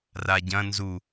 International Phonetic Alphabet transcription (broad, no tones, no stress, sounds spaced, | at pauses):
r a ɟ ɐ̃ n z u